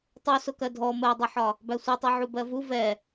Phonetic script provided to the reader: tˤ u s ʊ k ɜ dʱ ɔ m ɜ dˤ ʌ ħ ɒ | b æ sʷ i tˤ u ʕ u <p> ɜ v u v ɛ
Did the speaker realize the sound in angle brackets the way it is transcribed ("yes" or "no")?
no